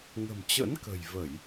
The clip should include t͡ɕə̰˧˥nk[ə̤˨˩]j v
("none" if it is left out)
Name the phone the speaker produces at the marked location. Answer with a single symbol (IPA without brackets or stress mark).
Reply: ə̤˨˩